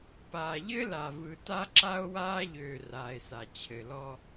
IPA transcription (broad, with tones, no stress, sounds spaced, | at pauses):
p aː˨ ʎ ɘ˦ l a˨ v ɯ˨ t a˦ ǁ a˦ o̯ w aː˦ ʎ øː˨ r aː˨ e̯ s a˨ t͡ɕʰ ɘ˨ l ɔ˦